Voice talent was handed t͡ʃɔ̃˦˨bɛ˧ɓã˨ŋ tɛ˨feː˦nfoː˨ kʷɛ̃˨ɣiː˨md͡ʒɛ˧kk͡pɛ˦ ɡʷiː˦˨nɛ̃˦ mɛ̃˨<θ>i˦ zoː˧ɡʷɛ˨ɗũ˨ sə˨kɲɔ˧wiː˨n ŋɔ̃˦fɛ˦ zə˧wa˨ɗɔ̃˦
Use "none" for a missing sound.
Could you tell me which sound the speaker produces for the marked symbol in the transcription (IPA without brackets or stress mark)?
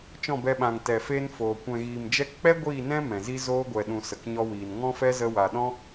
z